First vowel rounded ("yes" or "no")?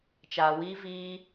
no